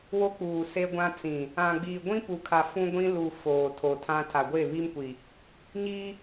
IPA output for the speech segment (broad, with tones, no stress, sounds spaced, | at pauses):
w o˦ k͡p uː˨ s e˦ ɡʷ ã˦ t͡s ĩ˨ | ã˨ ɡ͡b iː˨ ɡʷ ĩ˦ p u˨ kʰ a˨ f ũ˦ ɡʷ ĩ˦ l u˨ f oː˨ tʰ o˨ tʰ ã˦ tʰ a˨ ɡʷ e˦˨ β i˦ m kʷ i˨ | ɲ i˦